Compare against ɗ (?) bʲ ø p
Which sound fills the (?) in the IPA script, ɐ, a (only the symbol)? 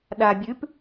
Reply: a